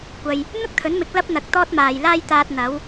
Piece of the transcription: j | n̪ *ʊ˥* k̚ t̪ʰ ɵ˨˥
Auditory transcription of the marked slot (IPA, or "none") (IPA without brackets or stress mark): ʊ˥